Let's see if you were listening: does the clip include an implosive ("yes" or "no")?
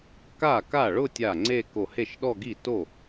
yes